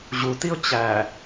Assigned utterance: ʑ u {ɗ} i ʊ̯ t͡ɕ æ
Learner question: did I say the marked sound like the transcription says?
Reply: no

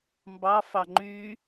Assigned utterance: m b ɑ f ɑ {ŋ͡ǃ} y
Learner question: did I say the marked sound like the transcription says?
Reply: yes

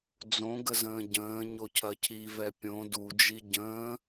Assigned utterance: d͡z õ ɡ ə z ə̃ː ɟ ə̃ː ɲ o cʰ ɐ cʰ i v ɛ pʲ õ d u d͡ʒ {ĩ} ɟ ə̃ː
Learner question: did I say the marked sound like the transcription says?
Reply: no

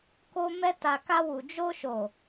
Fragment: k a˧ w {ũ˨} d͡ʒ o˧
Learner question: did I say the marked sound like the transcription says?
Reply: no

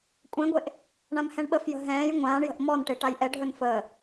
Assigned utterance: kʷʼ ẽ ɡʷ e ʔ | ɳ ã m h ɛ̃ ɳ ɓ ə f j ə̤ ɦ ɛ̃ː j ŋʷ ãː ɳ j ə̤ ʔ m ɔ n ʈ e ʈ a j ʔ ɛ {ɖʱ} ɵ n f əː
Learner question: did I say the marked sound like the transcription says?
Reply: yes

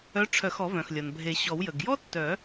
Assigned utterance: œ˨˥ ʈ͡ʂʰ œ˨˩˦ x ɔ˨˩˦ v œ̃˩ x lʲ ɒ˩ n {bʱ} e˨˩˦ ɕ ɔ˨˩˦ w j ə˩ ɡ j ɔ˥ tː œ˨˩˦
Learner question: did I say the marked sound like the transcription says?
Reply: yes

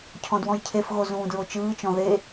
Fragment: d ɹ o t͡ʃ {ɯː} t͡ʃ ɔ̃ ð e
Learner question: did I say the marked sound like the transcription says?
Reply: yes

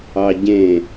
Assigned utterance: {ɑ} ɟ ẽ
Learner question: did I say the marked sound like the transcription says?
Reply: yes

